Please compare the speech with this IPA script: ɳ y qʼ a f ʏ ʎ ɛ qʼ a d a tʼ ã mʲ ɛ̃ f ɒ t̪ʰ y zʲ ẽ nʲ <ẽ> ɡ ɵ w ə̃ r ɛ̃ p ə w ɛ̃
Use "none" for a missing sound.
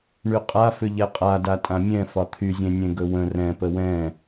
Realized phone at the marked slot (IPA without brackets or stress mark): ẽ